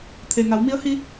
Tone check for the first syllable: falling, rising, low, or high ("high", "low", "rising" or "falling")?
low